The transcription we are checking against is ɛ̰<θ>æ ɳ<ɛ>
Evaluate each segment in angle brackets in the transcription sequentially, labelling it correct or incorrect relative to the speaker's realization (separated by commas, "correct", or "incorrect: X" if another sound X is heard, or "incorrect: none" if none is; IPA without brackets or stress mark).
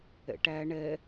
incorrect: ʈ, correct